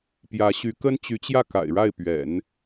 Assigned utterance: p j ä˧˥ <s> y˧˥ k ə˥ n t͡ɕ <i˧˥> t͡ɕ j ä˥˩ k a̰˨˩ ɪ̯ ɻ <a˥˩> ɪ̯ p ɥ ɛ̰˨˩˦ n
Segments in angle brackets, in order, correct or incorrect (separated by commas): incorrect, incorrect, correct